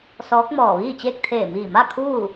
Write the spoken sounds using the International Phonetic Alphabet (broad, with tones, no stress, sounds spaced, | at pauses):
s ɔː˧˥ k̚ m ɔː˧˩ ʋ iː˥˨ t͡ɕ eː˥˨ k̚ t̪ʰ eː˧˩ m iː˧˩ m a˥˨ kʰ uː˥˨